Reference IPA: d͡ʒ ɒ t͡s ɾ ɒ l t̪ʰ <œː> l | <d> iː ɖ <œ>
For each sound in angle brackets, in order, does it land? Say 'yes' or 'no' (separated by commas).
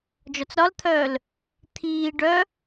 yes, no, yes